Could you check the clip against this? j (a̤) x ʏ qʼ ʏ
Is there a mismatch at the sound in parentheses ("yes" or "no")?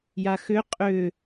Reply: yes